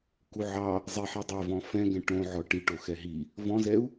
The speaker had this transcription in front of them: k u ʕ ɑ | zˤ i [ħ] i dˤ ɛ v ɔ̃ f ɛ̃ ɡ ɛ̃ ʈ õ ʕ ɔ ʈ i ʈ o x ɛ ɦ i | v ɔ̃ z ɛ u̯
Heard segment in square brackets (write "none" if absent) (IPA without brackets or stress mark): ħ